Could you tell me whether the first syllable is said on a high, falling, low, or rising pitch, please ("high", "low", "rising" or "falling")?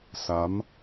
rising